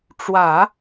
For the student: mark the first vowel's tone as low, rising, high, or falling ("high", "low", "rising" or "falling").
low